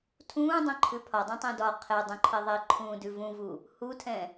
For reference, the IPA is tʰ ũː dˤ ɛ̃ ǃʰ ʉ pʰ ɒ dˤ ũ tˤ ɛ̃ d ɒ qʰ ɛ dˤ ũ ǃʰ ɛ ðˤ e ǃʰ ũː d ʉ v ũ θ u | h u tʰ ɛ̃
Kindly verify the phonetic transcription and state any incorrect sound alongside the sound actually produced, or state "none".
θ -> v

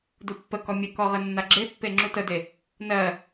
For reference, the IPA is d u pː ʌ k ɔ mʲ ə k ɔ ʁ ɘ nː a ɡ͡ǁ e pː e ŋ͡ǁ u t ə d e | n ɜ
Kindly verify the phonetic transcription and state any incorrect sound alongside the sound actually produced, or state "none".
ʌ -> ə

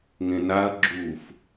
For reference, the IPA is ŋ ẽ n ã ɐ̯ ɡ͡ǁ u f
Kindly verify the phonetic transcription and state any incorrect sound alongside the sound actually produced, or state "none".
ã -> a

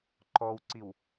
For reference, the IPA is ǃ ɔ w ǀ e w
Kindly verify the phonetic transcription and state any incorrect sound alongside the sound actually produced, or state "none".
e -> i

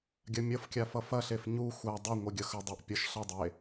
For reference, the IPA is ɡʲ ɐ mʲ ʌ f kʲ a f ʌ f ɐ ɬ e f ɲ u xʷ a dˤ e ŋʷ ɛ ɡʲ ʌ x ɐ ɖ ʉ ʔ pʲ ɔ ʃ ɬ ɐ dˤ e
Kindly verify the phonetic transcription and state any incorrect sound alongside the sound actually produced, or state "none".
ɖ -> dˤ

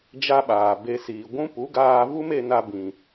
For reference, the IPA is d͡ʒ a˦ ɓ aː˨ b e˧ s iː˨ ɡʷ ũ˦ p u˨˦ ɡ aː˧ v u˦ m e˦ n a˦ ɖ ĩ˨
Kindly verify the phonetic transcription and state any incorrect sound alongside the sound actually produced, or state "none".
ɖ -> b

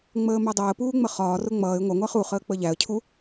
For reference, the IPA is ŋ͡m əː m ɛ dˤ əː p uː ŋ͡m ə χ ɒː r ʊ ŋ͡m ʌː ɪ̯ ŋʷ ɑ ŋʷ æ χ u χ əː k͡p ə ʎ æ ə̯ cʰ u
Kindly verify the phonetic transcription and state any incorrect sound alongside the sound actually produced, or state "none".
none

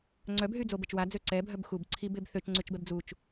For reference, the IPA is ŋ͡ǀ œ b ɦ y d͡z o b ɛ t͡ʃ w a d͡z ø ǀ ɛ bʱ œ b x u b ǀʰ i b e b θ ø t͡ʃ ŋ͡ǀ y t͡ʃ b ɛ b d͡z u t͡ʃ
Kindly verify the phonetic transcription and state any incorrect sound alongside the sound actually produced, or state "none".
none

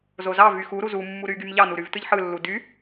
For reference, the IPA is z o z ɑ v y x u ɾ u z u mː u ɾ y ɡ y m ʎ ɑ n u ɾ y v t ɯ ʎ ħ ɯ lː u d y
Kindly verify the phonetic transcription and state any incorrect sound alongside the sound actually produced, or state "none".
none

